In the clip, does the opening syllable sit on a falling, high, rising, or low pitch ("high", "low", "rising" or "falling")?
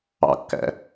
low